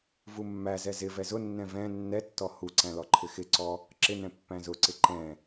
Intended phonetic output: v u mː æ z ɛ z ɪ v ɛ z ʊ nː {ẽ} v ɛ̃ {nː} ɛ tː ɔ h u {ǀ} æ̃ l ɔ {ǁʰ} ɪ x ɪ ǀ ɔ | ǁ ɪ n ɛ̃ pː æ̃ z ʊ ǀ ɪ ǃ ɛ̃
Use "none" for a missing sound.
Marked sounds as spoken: ɛ̃, nː, ǀ, ǃʰ

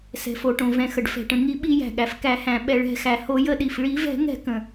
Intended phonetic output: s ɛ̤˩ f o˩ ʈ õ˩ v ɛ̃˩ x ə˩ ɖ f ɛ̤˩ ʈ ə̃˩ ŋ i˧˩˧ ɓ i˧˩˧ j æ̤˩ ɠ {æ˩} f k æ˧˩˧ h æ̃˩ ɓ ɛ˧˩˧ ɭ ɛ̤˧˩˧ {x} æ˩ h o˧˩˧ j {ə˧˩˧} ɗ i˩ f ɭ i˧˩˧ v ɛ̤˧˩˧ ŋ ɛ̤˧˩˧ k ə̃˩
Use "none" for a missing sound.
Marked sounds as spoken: æ˩, x, ə˧˩˧

